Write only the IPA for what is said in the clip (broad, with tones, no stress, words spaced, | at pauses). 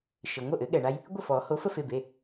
ʃɘ˩ ŋʷə˥˩ʔɘ˩˥ɠɛ˩ɳa˦j | ɡʷə˥˩fɔ˨˩˦ ho˩˥fə˦fe˩˧˩be˩˧˩